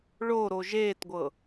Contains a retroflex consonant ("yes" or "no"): yes